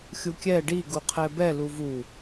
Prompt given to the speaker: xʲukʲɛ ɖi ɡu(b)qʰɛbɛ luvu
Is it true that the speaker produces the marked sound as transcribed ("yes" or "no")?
no